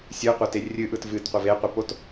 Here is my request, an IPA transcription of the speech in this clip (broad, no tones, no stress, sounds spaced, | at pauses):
sʲ ɯ qʷ a t e rʲ ɨ ʔ ɯ t v ɨ t qʷ ɤ v e qʷ ɨ p o t